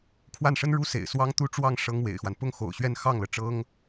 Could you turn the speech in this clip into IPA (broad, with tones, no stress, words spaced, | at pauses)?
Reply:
kʰwa˥˩nʂə˥nɻu˥sḛ˨˩ɪ̯ swɑ˥ŋt̪u˥ʈ͡ʂwɑ˥˩ŋ ʂɤ˥ŋwḛ˨˩ɪ̯xwa˦n pʊ˥ŋxo̰˨˩ʊ̯ɕɥɛ˥˧n xɑ˥˩ŋlɤ˩ʈ͡ʂɤ˥ŋ